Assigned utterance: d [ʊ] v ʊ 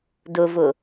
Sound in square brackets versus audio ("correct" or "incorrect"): correct